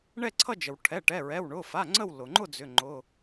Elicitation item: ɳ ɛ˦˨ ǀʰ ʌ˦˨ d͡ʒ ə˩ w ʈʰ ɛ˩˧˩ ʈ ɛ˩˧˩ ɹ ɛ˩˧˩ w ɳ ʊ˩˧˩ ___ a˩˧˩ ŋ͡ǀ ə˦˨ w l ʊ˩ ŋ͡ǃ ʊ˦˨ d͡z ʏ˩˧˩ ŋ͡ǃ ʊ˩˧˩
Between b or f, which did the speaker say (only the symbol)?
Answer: f